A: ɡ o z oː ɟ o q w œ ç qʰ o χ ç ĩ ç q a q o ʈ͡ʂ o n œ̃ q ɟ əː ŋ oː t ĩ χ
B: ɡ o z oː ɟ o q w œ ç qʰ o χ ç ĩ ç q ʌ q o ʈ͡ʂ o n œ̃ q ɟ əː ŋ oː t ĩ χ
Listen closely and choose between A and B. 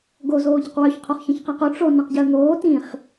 A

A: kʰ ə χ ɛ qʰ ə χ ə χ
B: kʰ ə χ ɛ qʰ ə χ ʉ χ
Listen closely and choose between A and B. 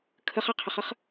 A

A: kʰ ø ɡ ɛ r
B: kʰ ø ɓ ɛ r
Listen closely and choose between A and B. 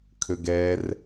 A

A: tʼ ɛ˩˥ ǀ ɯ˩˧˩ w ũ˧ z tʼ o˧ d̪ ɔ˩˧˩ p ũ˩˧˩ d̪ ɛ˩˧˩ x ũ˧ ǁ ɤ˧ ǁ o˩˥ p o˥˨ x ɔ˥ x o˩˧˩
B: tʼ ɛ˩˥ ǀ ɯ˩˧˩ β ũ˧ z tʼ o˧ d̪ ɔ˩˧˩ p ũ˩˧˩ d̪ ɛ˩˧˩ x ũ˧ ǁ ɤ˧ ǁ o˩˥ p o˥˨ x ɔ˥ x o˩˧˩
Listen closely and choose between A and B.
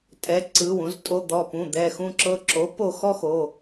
A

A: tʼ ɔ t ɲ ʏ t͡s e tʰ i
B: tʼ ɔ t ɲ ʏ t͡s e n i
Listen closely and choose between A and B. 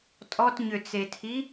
A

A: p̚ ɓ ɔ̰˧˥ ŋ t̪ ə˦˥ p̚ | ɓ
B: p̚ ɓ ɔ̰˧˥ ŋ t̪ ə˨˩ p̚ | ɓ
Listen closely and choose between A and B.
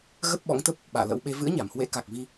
A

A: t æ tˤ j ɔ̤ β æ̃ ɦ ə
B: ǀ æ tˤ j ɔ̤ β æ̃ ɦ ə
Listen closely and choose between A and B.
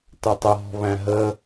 A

